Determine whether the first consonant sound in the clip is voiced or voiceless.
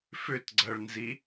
voiceless